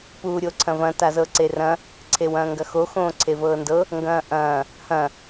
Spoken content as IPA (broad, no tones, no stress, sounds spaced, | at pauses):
p uː ɾʲ o ǀʰ ɐ̃ v ɐ̃ t a z ɤ ǀ e r ɐ̃ | ǀʰ e w ɐ̃ː ŋ ɡ ɐ x o x õː ǀʰ e v ɤː n d ɤ | ŋ ɡ ɐ̃ː ʔ ɐ̃ː | h ɐ̃